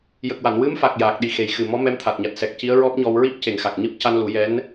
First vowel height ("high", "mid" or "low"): mid